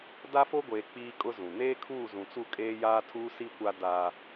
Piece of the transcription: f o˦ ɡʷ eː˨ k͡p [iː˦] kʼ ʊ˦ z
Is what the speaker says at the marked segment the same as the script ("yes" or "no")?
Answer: yes